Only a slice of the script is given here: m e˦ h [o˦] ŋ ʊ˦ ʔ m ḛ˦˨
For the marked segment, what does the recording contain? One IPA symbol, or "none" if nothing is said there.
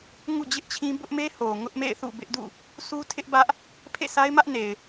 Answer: o˨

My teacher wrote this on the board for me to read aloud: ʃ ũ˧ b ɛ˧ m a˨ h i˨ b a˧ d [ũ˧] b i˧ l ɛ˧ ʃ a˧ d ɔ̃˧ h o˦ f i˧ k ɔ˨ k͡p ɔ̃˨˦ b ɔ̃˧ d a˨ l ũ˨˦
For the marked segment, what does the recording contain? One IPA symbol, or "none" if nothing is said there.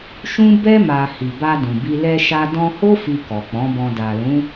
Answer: ũ˨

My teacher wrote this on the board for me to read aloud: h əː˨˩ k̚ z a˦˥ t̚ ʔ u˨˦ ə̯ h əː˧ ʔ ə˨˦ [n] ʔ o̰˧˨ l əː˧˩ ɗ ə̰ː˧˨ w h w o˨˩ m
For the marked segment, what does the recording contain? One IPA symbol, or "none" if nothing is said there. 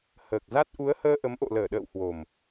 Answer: m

